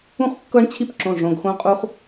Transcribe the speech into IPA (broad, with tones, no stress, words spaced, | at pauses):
ũ˦χkːɤ˦ɳ t͡ɕʰi˦pǁõ˩˧˩ ʐõ˩˧˩ɡxõ˦ qʼu˦χ